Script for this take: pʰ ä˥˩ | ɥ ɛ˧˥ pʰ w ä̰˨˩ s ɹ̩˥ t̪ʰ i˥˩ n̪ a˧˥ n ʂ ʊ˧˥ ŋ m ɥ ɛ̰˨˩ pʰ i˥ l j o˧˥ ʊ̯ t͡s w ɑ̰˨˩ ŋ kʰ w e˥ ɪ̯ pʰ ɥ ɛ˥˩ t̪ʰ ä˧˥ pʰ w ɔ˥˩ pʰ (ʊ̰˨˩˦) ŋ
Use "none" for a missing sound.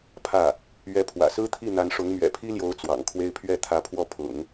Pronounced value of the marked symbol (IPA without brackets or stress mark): ʊ̰˨˩˦